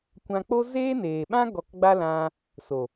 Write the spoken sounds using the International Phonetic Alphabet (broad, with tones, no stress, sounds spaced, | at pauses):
kʷ ã˧ k͡p o˦ z eː˦ n eː˨ ɓ ã˦ ɡ ɔ˧ k ɡ͡b a˦ l ã˧ | s o˨